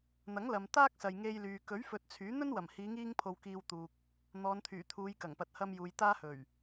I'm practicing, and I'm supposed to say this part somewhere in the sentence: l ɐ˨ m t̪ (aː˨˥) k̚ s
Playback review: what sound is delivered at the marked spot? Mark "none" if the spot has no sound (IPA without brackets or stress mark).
aː˥